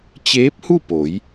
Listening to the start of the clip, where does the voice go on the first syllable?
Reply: rising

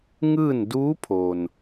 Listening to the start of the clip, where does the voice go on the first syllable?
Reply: falling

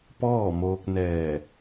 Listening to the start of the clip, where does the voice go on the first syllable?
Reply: falling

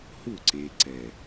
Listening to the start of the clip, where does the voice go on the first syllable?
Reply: falling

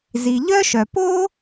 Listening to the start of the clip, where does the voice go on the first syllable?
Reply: low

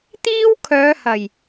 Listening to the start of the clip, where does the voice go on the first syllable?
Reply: high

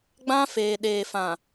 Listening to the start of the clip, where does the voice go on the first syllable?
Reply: high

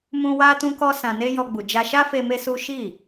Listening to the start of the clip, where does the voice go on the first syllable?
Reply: high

